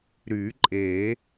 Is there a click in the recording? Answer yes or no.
yes